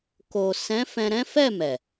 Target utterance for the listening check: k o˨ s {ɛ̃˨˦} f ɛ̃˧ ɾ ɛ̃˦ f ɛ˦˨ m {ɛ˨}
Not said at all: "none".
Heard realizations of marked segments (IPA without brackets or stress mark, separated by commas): ɛ̃˨˦, ɛ˨